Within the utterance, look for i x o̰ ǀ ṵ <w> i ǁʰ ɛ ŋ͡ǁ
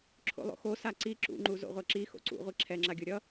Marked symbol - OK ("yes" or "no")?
no